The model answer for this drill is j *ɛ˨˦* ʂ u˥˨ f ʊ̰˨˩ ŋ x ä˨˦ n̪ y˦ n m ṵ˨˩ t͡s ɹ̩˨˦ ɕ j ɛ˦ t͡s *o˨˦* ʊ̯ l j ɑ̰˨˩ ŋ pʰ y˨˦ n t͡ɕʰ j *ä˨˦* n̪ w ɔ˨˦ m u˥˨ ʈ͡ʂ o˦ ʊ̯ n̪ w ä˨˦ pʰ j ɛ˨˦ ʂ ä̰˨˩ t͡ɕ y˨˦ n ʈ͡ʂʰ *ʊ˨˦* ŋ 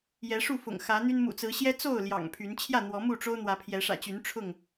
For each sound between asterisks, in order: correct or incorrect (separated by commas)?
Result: correct, incorrect, incorrect, incorrect